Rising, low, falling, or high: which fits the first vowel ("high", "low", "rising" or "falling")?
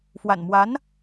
low